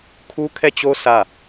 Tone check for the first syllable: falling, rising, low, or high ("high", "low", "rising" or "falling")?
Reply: high